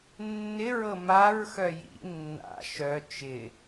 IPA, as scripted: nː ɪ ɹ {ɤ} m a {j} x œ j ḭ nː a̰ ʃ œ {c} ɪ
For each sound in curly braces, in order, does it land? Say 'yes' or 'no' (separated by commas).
yes, no, no